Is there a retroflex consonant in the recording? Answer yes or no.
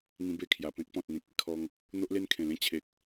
no